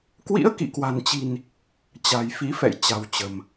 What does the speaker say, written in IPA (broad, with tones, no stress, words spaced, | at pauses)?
kwḭ˧˥ə̯kḭ˧˨kwa̤˨˩nt͡ɕi̤˨˩n | t͡ɕa̤˨˩jfi˨˦ fɛ̰˧˨j t͡ɕa̤˨˩wt͡ɕə̤˨˩m